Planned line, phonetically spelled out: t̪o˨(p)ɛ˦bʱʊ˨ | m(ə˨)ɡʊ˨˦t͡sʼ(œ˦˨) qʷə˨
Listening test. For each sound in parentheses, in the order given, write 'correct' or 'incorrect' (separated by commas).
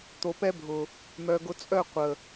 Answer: correct, incorrect, correct